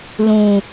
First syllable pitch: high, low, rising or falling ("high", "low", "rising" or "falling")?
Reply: low